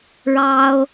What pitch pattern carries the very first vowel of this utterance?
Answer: high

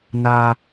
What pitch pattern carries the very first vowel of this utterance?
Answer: high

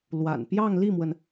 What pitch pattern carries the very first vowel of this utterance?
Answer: low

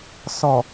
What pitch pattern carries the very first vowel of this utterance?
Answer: low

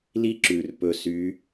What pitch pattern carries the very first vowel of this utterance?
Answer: high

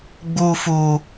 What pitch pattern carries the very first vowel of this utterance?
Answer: high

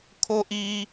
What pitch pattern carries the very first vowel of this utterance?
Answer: high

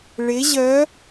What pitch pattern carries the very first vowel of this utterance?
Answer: rising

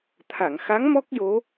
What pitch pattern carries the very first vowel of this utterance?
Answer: low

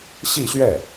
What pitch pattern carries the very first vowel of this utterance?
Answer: falling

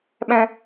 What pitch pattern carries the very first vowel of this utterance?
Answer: high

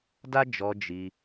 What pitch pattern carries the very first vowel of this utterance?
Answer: high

